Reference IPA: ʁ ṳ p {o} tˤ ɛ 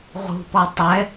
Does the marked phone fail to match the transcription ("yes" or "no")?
yes